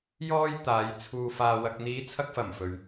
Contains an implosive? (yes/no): no